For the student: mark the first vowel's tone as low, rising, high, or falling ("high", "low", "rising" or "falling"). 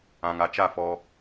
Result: low